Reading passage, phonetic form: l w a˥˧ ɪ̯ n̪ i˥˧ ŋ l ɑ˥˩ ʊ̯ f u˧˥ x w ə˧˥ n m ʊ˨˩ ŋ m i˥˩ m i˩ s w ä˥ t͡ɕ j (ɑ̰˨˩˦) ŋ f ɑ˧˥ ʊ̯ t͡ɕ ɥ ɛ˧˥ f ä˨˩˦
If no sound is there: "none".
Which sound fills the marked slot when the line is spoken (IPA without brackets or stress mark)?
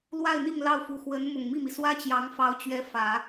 ɑ˧˥